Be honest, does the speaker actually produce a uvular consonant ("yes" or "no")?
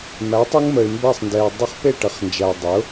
yes